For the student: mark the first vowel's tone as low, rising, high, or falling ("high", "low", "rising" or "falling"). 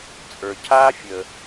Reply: low